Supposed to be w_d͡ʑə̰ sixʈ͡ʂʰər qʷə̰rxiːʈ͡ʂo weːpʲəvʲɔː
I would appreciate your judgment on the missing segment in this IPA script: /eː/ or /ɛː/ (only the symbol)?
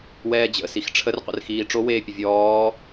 ɛː